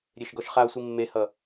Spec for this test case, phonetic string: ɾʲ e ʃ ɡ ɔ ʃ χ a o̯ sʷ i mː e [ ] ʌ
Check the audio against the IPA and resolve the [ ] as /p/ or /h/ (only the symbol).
h